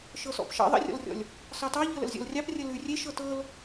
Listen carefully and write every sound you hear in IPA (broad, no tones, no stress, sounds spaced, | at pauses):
ʃ ɤ s ɔ̰ p ʃ ɑ̰ ðˤ ə̰ rʲ ɔ̰ l rʲ ɔ̰ lʲ | s ɑ t ɑ ʎ ɤ l ə̰ l zʲ ɔ̰ l rʲ ɑ p rʲ ə l ʉ rʲ e ʃ ɤ t ɤ l